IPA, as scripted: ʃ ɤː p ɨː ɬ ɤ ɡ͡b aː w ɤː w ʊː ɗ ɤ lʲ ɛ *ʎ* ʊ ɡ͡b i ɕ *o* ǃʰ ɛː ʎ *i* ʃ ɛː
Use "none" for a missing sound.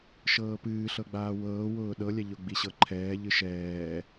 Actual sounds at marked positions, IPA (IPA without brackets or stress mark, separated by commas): ʎ, ɤ, ɨ